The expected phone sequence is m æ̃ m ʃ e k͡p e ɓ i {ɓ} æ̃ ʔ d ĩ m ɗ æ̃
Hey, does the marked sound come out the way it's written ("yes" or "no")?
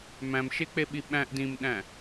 yes